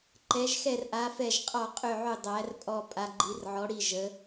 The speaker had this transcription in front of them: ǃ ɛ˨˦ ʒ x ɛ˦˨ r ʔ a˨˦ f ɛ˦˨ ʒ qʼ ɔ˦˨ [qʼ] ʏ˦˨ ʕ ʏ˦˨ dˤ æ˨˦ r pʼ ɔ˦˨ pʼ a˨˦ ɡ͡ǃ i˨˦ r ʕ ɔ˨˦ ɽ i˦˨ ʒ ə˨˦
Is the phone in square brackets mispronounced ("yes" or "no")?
no